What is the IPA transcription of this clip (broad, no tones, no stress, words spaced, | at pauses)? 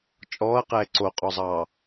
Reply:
t͡ʃʼɔːɐ̯qɛː ǀoqʼɔzˤɑː